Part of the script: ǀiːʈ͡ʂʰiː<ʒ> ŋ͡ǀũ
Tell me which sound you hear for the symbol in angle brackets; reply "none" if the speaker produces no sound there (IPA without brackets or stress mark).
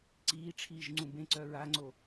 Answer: ʒ